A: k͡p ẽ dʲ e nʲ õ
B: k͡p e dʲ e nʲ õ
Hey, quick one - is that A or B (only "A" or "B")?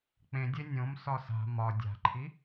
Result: A